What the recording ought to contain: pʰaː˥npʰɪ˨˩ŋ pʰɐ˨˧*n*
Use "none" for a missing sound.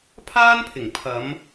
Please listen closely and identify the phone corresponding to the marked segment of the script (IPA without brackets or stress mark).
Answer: m